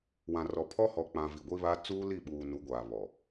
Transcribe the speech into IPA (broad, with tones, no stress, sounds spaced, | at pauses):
w ã˨ r ɔ˨ pʰ ɔ˦ h ɔ˨ k͡p ã˨ v i˨ ɡʷ i˦ β a˦ t͡s uː˦ l i˦˨ ɓ uː˨ n u˨˦ ɡʷ aː˨ β ɔ˨